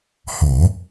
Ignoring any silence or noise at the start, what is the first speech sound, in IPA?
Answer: h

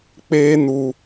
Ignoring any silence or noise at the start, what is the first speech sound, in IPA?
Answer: k͡p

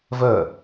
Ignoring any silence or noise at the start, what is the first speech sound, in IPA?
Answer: v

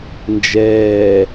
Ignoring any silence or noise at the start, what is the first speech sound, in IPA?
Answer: n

